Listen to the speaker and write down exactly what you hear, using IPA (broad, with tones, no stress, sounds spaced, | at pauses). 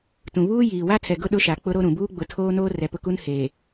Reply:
t ũ˨ β uː˦ j iː˨ w a˦ tʰ ɛ˨ ɡ ʊ˦ ɗ ʊ˦ ʃ a˨ k͡p ʊ˦ ɾ o˦ ɾ ũ˨ b uː˦ ɡ͡b ʊ˨ tʰ oː˦ n oː˦ r ɛ˨ p ʊ˦ k u˦ n h eː˨